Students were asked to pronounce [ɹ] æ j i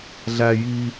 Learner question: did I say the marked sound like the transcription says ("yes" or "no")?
no